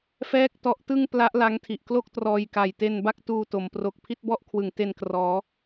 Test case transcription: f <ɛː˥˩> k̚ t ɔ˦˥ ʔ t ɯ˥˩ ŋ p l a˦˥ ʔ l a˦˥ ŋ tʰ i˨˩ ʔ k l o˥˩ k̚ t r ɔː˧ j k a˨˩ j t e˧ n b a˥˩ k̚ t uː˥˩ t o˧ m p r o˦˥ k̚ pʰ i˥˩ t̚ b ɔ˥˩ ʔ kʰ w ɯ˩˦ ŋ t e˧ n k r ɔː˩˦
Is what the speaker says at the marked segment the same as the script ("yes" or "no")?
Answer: yes